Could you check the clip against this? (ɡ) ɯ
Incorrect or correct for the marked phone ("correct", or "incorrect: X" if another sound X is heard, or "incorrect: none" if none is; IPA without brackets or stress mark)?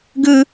correct